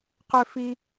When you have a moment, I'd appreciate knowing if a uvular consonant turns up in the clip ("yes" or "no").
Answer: yes